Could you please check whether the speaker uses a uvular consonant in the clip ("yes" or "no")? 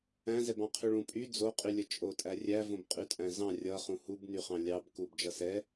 yes